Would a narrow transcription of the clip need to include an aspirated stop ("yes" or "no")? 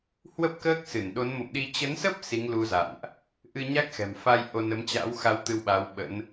no